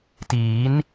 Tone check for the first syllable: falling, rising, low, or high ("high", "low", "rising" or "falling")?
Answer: rising